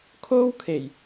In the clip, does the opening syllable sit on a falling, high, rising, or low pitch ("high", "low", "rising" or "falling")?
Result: high